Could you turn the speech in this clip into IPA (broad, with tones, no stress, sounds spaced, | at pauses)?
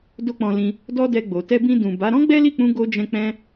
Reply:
d o˦ k͡p ɔ̃˧ l ĩ˧ | d ɔ˦ d ɛ˧ ɡ͡b o˨ t ɛ˧ b ĩ˧ d ũ˨ b a˨˦ ɾ ɔ̃˦ ɡ͡b ɛ˦ l i˦˨ k͡p ũ˧ ɡ o˦ d͡ʒ ɛ̃˦ k͡p ɛ̃˦